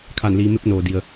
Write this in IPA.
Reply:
kʰ a˧˩ n l iː˩˧ m e˧˥ p̚ n oː˩ d i˩ ə̯

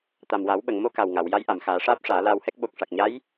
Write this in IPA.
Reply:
t̪ a˨˩ m w a˨˩˦ w ɓ ə˨˩˨ ŋ m o˧ k a˨˩ w ŋ a˨˩˨ w j a˧˥ j ʔ a˨˩˨ m x aː˨˩˦ ʂ aː˦˥ p̚ ʂ aː˨˩˦ l aː˧ w h ɛ˦˥ k̚ ɓ o˨˩ k̚ ʂ a˨˩ k̚ ɲ a˧˥ j

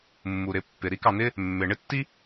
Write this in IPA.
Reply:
mː u˩ ɾ ɪ˨ pː ɪ˩ ɾ i˦ k ɑ˨ n̪ ɪ˦ | mː ɪ˩ ɳ ɪ˥ tː i˥

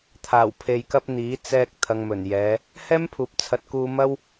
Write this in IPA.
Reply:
t̪ʰ aː˨˩ w pʰ e˨ j k ɐ˧ p̚ n̪ iː˨˥ t͡s ɛː˧ k̚ t̪ʰ ɐ˨ ŋ m ɵ˨˩ n j ɛː˨˧ | h ɛː˥ m pʰ uː˨˥ p̚ t͡sʰ ɐ˨˥ t̚ k uː˧ m ɐ˥ w

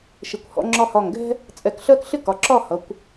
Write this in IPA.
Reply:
ʃ ɪ˩˧ kʷ h ɔ̰˩˧ ŋ͡ǁ ɒ˧ h ɒ˧˩ ŋ ɡ ɛ̤˥ | t͡sʼ ɛ˧˩ k ɬ ɜ˥ k ɬ ɪ˥ k ɒ˩˧ ǁ ɒ˥˧ h ʌ˩˧ kʷ

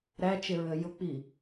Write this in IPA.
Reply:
ɾ æ t͡ʃ ɪ ɹ ə j ʊ k͡p i

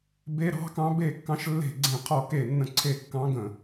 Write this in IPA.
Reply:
b e˨˦ ɾ ɑ̤˨˦ k ɑ̃˨˦ b e˧˩ kː ɑ̃˨˦ ʃ lː e̤˧˩ ɡ͡ǀ ẽ˧˩ qʰ ɔ˧˩ k e˧˩ nː ə̃˧˩ ǀʰ e˧˩ kː ɑ̃˨˦ ɡ ə̃˧˩

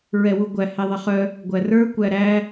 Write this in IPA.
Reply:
ɹ ɛ w u ɡʷ æ h e ðˤ ə χ œ | ɡʷ æ r ə˞ kʷ æ ɾ æ

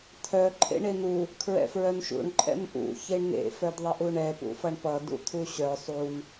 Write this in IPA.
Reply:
t̪ʰ œ ǃʰ ḛ ɳ e n u | kʰ ɹ ɛ̰ f ɹ œ n ʃ ṵ ɳ ǃʼ ɛ̰ m ʔ ṵ ç e ɳ n ḛ f œ d ðˤ ʌ ʔ u ɳ ɛ p ṵ f ʌ ɳ p ʌ d ṵ t̪ʰ u ɕ œ sˤ u n

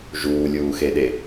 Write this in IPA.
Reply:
ʒ uː lʲ uː x e ɗ e

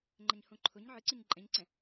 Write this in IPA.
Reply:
ŋ͡ǃ ɛ ɲ h õ ǃʰ ʊ ɲ ʕ ɨ ǀ ɨ ɲ ǃʼ ɛ̃ ɲ ǀ ɛ̃

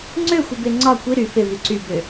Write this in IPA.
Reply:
ŋ͡ǀ ø xʷ i b e ŋ͡ǀ ɒ kʷ i ɾ y f e v y ǀ y b ø

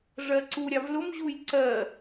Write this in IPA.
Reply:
ʐ ɜ ǀ u ɾʲ ɑ v l ʊ m ʑ u j ǀ ɜ

